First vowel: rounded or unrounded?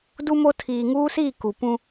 rounded